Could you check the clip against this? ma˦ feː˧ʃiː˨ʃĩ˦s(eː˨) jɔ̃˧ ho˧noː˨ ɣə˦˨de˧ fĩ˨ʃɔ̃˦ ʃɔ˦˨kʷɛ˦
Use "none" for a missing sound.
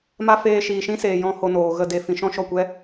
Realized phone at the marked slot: eː˨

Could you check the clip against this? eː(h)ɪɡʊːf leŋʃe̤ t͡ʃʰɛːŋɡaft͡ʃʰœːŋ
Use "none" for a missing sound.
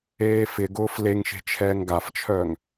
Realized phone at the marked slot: f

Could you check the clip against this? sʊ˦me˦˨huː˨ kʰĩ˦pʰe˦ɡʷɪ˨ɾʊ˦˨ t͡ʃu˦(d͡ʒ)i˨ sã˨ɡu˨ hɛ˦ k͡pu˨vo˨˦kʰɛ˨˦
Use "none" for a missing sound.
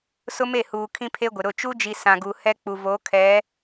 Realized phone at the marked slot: d͡ʒ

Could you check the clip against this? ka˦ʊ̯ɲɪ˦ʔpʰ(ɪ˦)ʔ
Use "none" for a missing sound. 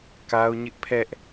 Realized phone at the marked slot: ɛ˦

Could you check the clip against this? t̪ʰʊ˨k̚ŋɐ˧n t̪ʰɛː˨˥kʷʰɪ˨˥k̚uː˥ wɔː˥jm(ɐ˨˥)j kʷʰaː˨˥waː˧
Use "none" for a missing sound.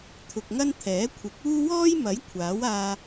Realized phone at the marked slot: ɐ˨˥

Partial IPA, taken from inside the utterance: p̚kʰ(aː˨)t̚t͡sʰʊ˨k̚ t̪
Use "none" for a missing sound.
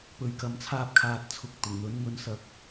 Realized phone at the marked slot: aː˨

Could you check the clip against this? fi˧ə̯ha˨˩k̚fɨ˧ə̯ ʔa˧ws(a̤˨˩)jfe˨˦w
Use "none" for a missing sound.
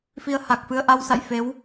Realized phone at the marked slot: a̰˧˨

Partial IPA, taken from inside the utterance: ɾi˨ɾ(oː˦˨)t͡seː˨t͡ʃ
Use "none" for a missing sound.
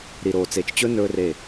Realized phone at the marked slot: oː˨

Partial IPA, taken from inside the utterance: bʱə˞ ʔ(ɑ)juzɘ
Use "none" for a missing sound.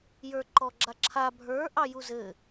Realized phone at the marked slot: ɑ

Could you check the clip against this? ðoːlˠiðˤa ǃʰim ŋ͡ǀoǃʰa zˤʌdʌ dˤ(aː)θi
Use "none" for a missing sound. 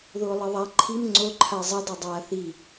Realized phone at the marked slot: aː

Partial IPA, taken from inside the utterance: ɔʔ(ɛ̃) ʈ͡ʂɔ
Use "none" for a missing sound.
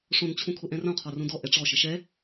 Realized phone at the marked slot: ɛ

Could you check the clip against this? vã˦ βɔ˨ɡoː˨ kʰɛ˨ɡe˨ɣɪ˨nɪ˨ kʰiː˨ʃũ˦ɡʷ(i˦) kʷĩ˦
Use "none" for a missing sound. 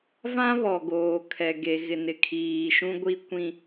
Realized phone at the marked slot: i˦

